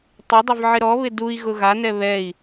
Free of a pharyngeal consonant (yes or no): no